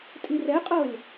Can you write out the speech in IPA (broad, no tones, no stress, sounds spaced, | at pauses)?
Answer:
tʼ i r ɛ qʼ ɤ lʲ